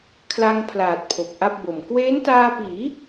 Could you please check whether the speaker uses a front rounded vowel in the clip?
no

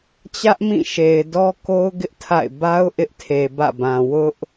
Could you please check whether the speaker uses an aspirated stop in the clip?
yes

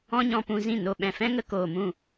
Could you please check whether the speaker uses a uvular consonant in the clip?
no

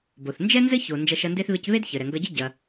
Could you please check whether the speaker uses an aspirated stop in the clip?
no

